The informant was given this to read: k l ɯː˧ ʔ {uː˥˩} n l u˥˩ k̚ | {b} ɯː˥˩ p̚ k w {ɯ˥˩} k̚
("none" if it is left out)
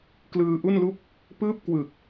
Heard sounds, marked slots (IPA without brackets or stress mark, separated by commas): u˥˩, p, ɯ˨˩